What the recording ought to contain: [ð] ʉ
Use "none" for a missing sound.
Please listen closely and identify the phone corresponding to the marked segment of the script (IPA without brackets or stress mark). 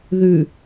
ð